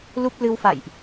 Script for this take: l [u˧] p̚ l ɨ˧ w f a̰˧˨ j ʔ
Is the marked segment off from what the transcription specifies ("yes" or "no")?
yes